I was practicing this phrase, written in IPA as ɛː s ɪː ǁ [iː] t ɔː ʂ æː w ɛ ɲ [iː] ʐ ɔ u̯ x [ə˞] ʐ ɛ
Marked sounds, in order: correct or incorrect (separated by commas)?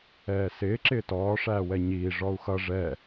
incorrect, correct, incorrect